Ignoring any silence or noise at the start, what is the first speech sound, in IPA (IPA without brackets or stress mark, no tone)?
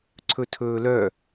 ǀʰ